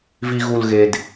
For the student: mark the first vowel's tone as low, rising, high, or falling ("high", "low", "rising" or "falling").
low